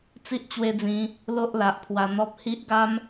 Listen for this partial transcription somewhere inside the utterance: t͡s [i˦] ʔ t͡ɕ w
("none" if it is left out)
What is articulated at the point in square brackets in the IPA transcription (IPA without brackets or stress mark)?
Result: i˦